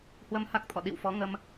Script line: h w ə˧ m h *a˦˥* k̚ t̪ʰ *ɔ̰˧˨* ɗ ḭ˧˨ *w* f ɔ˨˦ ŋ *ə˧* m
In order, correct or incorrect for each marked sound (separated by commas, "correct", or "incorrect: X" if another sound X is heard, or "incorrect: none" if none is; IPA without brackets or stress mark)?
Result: correct, correct, correct, correct